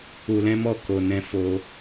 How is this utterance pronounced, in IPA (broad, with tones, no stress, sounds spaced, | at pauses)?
u˧ l ɛ̃˦ m ɔ˦˨ k o˧ n ɛ̃˦ f o˧